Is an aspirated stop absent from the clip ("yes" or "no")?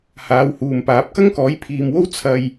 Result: no